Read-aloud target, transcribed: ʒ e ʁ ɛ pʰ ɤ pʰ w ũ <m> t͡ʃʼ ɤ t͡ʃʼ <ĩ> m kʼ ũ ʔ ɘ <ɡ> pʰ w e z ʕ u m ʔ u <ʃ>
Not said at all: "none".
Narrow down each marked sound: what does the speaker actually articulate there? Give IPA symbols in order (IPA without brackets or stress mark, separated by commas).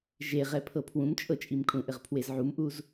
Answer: m, i, ʁ, z